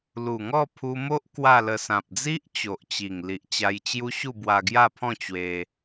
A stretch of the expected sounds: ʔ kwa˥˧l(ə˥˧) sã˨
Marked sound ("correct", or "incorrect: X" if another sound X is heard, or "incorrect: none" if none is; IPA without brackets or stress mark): incorrect: ə˧